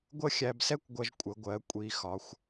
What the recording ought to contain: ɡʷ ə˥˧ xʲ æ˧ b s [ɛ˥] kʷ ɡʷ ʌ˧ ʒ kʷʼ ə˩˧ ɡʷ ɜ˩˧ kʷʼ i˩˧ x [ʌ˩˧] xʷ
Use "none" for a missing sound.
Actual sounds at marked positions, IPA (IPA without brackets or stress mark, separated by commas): ɛ˥, ɒ˩˧